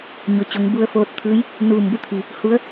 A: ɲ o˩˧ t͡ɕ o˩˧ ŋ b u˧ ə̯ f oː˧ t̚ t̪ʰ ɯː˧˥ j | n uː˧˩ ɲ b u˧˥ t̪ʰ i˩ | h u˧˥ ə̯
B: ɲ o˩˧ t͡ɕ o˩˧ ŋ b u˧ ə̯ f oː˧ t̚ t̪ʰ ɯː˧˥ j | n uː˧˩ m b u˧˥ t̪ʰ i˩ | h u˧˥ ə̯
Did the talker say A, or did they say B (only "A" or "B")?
B